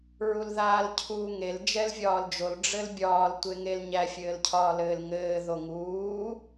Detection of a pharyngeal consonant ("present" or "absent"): absent